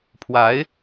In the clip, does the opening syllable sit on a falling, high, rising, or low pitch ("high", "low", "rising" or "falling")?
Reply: rising